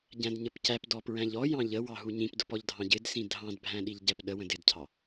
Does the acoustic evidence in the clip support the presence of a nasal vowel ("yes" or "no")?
yes